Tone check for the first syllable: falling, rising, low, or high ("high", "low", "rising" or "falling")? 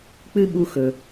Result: high